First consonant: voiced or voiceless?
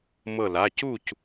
voiced